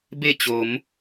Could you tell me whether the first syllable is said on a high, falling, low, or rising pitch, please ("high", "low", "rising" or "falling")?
falling